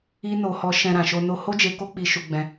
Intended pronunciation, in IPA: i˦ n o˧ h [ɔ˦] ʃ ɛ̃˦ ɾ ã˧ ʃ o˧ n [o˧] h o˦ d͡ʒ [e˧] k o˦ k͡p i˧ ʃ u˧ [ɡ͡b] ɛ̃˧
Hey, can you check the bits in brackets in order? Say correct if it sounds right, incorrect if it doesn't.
correct, correct, correct, correct

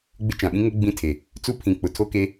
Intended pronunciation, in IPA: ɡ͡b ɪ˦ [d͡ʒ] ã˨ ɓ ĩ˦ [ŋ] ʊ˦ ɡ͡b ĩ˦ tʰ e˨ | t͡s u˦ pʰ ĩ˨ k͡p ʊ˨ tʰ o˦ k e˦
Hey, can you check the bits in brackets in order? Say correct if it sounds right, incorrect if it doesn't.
incorrect: t͡ʃ, correct

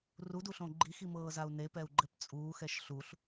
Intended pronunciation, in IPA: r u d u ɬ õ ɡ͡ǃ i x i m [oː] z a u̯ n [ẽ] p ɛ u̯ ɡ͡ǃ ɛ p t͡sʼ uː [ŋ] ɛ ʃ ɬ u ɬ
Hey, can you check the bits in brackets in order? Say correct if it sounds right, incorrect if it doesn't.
incorrect: ɤː, incorrect: e, incorrect: x

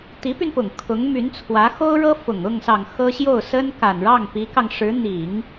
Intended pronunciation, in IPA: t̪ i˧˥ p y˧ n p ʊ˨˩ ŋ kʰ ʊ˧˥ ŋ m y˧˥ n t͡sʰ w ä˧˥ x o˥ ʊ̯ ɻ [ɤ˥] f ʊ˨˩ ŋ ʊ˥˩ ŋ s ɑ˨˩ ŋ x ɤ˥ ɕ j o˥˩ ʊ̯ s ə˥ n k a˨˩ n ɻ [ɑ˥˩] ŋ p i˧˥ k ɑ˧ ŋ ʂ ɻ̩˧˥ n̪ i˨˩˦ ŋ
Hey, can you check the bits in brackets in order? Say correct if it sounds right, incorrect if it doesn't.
correct, correct

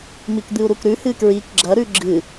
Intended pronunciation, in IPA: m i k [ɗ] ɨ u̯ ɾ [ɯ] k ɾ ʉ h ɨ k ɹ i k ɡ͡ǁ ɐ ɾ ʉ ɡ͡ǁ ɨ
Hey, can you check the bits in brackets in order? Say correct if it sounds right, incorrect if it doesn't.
incorrect: d̪, incorrect: u

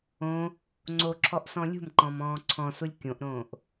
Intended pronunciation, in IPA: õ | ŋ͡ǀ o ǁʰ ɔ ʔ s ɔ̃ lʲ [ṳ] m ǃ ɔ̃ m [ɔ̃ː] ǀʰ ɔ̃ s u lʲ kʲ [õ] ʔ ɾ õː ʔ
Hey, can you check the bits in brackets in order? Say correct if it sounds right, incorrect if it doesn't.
correct, correct, correct

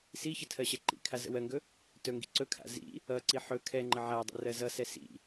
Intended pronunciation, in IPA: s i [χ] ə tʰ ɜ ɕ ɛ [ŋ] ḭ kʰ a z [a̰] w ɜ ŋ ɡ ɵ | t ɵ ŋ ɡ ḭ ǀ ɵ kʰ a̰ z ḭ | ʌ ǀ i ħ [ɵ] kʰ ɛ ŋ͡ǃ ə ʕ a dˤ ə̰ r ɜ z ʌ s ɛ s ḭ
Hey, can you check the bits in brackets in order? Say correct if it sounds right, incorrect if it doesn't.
incorrect: ç, incorrect: ǃ, incorrect: ə̰, correct

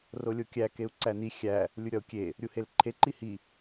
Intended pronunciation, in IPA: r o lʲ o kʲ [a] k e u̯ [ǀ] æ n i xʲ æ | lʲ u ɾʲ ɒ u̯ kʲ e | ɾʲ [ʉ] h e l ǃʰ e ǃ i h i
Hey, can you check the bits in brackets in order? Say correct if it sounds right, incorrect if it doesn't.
incorrect: æ, correct, incorrect: u

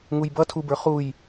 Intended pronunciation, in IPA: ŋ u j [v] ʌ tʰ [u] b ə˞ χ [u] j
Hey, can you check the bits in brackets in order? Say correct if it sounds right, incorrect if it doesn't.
incorrect: b, correct, correct

